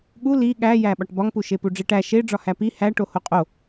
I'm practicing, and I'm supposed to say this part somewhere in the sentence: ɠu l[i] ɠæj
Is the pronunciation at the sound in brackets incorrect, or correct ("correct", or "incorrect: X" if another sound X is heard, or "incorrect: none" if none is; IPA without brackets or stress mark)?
correct